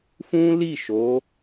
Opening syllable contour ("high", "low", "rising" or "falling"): high